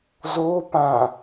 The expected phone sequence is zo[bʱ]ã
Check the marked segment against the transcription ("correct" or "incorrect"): incorrect